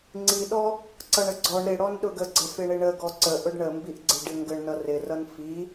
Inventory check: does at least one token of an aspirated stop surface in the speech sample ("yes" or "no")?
no